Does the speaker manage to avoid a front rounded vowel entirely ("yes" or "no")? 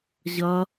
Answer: yes